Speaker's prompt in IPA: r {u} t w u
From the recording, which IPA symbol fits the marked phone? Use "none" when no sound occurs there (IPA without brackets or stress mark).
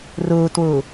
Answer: u